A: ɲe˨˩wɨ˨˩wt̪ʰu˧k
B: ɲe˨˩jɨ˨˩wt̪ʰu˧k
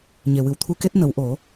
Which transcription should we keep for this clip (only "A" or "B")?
A